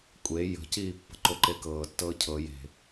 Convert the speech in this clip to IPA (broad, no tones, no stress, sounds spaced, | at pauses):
kʷʼ e j ə̤ c iː pː ə̤ ǃ o ǃ e k ɤː tː ɤː cʰ ɤ j e̤